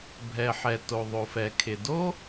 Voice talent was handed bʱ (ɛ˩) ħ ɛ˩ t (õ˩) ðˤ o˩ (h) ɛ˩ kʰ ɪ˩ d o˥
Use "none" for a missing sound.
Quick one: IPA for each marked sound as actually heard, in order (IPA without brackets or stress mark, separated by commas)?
ɛ˩, o˩, f